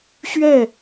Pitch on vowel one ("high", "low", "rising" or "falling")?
falling